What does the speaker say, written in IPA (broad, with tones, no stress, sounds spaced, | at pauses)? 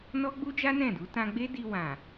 n ɔ˦ ɡ͡b u˦ d͡ʒ a˦ n ɛ̃˦˨ d u˨˦ t ã˧ ɡ͡b e˦ d i˧ w ã˨